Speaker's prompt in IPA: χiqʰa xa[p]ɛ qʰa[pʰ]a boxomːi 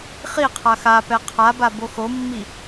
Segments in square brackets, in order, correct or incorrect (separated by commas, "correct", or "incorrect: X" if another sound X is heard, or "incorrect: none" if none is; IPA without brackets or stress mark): correct, incorrect: b